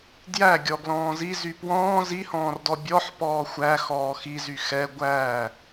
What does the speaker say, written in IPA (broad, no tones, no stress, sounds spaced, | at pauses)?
d j æ ɡʲ ɔ ɡ l ɔ̃ː z i z y p w ɔ̃ː z i h ɔ̃ː r d ɔ bʲ ɔ ħ p ɔː xʷ æ x ɔː x i z y x ɛ ɡʷ æ